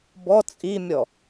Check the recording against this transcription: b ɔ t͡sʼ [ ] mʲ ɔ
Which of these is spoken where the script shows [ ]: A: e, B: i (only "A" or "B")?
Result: B